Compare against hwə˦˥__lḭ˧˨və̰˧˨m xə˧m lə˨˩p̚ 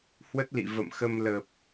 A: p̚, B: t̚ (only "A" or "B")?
B